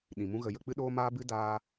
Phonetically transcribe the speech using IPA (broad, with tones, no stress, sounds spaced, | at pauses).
ɗ ĩ˨ m ũ˦ ɣ ə˧ j ə˧ k͡p ɨ˦ ɗ oː˦ m aː˦ b ɨ˦ d aː˧